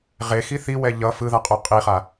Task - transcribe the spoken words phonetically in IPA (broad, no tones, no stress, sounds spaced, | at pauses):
ʁ e x i θ i w ɛ ʎ ʌ f ɯ ð a qʼ o qʼ i χ a